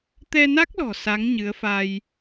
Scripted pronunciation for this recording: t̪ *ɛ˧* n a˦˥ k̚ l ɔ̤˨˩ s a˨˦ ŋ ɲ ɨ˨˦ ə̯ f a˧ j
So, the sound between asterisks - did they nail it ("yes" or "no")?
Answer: yes